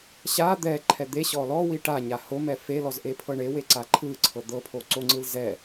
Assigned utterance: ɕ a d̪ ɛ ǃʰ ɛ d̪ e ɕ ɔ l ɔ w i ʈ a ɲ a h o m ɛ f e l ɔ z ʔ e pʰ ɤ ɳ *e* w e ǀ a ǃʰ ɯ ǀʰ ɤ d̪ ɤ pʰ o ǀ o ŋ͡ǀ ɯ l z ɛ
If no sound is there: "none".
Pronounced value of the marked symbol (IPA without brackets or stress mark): e